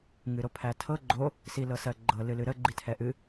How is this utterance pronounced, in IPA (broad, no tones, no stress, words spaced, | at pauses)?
ŋɨɾopʰætʰɤ ɡ͡ǃo | silɤsɜɡ͡ǃɤ lɨlɨɾə ɡ͡ǃitʰɛʔɨ